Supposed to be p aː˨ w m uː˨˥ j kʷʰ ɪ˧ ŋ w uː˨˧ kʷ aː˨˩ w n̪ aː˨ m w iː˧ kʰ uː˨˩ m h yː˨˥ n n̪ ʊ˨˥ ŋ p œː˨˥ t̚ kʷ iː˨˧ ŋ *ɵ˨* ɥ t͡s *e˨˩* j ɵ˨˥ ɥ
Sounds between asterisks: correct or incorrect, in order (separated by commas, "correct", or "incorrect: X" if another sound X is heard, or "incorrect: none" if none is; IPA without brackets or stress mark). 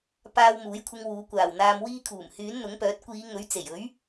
incorrect: ɵ˨˥, correct